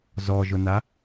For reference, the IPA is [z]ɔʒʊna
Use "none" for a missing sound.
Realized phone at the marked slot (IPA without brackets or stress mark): z